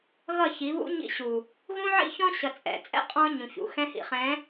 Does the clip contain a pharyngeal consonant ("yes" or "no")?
yes